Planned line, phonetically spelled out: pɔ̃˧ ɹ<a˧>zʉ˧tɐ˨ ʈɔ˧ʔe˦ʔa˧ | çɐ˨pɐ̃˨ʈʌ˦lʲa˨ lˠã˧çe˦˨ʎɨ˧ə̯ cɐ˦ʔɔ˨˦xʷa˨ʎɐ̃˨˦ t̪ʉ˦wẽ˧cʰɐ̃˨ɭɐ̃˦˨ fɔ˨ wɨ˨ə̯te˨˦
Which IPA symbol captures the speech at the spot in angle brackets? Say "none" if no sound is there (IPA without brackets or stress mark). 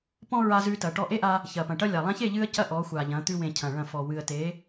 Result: a˧